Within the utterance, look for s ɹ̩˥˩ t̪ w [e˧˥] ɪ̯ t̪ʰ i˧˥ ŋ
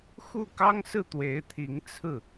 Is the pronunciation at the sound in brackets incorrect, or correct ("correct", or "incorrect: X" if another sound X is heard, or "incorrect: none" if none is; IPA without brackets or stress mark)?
correct